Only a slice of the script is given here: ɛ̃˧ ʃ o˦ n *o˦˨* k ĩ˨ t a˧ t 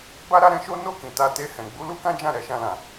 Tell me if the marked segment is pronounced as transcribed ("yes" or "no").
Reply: yes